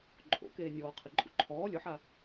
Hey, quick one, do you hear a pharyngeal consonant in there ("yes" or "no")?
yes